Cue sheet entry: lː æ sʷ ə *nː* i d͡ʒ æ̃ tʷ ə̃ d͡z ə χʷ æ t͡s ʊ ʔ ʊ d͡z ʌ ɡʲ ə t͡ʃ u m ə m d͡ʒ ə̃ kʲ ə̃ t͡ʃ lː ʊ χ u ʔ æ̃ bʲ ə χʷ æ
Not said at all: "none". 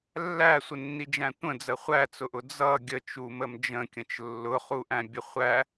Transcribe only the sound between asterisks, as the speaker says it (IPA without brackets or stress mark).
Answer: nː